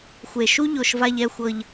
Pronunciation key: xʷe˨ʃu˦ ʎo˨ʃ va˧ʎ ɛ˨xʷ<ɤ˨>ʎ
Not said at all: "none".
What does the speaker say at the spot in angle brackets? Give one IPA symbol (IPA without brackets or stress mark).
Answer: ɤ˨